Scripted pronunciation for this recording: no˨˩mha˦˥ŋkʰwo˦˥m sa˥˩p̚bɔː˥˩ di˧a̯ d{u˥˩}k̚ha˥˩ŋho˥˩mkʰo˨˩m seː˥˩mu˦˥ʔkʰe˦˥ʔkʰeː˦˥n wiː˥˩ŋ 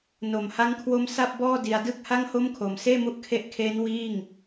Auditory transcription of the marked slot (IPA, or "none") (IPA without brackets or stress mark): ɯ˥˩